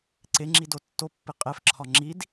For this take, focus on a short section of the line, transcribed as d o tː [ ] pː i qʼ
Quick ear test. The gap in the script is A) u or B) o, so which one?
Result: B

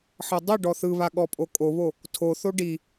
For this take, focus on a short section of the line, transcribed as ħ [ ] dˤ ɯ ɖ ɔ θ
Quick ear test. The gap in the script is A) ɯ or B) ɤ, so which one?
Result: B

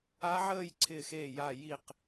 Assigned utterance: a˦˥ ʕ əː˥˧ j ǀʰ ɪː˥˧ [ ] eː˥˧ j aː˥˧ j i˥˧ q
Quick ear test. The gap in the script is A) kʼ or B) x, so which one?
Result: B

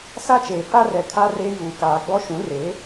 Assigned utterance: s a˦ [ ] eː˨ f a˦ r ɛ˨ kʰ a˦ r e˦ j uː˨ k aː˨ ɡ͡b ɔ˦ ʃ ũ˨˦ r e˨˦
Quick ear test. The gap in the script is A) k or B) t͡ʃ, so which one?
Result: B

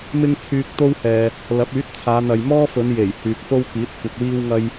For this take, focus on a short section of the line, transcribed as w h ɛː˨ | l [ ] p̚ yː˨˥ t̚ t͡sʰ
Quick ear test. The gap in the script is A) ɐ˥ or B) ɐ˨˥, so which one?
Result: B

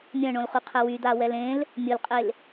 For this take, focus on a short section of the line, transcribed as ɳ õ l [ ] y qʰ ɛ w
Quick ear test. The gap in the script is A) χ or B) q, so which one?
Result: A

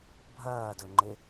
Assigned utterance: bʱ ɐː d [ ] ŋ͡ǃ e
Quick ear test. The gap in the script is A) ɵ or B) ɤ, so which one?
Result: A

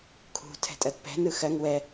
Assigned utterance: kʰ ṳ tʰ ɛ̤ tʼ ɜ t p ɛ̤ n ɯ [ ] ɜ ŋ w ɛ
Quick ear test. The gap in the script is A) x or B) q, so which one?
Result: A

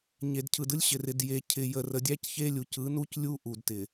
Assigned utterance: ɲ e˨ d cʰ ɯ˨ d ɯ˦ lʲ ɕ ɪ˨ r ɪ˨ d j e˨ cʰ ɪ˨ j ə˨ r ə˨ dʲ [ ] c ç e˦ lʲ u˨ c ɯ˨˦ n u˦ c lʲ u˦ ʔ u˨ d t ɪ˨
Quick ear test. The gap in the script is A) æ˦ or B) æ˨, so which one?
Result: A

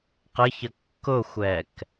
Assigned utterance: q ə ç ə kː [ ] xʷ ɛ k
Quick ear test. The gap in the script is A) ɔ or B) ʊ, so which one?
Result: B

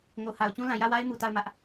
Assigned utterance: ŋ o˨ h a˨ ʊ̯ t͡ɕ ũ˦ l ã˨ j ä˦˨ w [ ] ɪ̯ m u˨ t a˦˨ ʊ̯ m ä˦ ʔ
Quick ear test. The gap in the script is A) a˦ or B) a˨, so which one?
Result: A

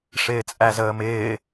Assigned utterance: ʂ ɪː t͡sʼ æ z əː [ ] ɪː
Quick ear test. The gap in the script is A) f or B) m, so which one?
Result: B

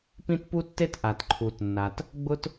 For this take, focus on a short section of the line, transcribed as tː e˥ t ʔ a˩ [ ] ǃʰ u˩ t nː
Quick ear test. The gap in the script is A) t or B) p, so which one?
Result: A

